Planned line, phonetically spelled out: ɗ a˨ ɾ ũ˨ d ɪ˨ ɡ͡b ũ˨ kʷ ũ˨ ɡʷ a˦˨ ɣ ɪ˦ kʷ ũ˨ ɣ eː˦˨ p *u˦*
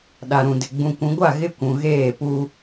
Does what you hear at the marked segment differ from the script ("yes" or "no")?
no